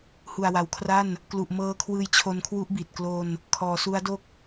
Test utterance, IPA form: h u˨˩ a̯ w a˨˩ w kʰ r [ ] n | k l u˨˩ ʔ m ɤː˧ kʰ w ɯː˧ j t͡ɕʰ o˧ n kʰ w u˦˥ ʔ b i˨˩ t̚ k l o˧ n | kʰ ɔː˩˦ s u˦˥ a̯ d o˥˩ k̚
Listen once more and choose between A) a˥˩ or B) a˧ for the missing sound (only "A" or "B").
A